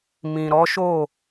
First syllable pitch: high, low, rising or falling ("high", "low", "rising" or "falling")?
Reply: low